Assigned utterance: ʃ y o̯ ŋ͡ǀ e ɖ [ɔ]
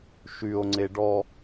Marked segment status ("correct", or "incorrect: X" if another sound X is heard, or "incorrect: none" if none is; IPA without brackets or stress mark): correct